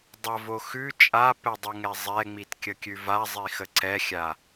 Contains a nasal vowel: no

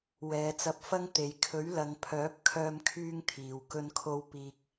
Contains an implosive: no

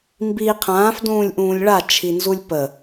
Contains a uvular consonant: yes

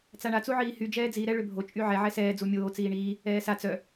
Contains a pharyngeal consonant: yes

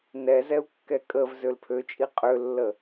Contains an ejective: yes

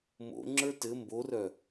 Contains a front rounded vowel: yes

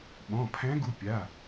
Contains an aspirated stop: yes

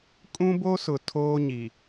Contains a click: no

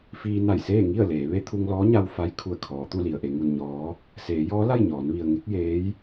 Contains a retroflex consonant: no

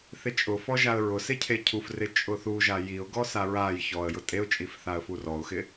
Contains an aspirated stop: yes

